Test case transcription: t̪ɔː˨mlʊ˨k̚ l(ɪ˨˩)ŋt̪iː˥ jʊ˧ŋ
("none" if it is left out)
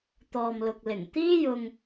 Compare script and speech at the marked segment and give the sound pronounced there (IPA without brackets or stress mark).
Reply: ɪ˨˩